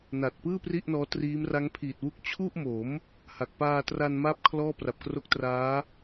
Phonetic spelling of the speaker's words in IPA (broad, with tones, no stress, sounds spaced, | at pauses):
n a˨˩ t̚ p ɯː˥˩ p r i˥˩ ʔ n ɔː˦˥ t r iː˦˥ m r a˦˥ ŋ pʰ iː˨˩ t̚ w u˦˥ k̚ t͡ɕʰ u˥˩ ʔ m o˩˦ m | h a˨˩ k̚ p aː˧ t r a˧ n m a˦˥ p̚ kʰ l ɔː˥˩ p r a˨˩ p̚ k r o˦˥ k̚ t r aː˦˥